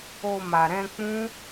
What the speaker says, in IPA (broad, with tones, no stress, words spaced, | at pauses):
o˧ ma˨ɾɛ̃˧ k͡pũ˦